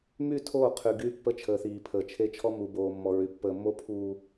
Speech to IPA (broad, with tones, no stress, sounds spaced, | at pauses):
m y˦˨ tʰ oː˦˨ qʰ y˨ ɡ yː˦ pː ə˦ t͡ʃʰ əː˨ θ iː˨ pʰ əː˨ t͡ʃʰ e˦ t͡ʃʰ ɔ˦ m u˨ b oː˨ mː ɔ˨ ɹ y˨ pː əː˨ mː o˦ pʰ uː˨